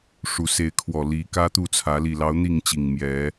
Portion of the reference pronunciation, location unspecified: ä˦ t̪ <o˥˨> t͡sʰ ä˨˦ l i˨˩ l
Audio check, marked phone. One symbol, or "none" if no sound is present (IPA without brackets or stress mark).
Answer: u˥˨